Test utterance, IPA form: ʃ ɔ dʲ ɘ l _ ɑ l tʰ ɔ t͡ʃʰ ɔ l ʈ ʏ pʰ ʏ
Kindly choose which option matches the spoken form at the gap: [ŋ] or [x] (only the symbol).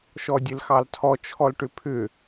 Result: x